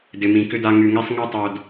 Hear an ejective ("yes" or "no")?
no